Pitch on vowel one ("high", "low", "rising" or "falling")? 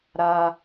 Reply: low